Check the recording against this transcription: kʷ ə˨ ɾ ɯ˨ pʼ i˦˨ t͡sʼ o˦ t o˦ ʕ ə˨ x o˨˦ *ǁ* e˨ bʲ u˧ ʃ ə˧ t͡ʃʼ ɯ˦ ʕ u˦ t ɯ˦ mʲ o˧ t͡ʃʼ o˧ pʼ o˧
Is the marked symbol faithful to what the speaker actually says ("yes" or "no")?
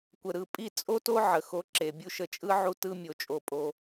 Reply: yes